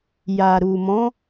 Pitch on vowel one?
low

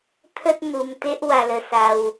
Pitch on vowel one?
high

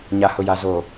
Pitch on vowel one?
low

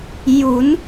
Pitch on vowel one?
rising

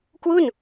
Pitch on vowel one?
falling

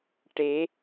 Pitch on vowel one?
rising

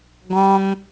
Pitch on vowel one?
high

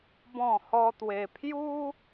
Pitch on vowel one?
falling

